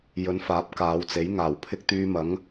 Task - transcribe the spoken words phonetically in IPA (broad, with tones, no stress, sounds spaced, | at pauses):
j ɵ˨˧ n f aː˨˥ p̚ k aː˨˧ w t͡s e˨˥ j ŋ aː˨˩ w pʰ ɪ˥ k̚ t̪ yː˧ m ɐ˨˥ ŋ